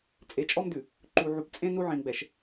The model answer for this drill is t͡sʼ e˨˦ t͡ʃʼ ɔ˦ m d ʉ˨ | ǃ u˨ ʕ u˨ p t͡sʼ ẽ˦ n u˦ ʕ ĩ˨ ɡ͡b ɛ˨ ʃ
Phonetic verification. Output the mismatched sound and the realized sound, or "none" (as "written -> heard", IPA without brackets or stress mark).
none